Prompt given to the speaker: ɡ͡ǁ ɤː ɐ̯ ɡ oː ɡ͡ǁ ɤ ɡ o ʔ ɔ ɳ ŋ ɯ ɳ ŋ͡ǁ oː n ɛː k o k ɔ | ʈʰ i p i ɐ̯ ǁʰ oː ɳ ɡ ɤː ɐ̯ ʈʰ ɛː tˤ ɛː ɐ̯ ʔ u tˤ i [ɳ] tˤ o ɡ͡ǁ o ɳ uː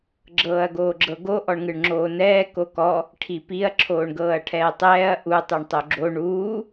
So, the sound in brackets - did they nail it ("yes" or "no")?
yes